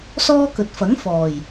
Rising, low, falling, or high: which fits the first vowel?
high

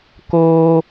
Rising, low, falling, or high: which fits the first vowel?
high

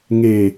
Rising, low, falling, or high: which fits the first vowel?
low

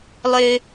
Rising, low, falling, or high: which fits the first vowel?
low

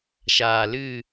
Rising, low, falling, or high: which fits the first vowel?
low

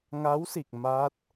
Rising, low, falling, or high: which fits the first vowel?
rising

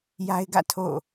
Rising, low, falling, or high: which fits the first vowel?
high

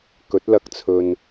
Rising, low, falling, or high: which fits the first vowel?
rising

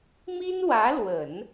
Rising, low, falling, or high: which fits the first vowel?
high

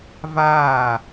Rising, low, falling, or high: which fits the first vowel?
falling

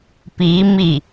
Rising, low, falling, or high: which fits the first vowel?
rising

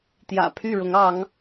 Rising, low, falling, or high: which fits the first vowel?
low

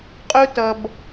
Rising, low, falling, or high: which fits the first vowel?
high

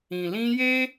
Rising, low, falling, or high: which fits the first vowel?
low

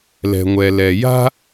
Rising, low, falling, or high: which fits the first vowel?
low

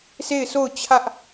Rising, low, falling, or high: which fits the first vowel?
falling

